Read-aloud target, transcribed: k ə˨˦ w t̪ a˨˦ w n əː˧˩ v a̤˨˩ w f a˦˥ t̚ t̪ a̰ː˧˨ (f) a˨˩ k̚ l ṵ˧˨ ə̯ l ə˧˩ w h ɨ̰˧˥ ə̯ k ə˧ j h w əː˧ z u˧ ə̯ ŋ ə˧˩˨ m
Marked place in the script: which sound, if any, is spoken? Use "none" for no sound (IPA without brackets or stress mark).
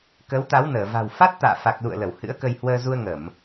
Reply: f